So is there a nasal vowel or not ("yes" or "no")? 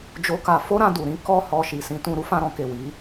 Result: yes